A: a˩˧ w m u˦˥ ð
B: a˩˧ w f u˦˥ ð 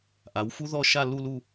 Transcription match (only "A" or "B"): B